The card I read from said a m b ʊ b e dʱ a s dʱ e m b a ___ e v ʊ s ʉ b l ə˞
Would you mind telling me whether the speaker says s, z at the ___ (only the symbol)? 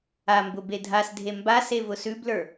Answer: s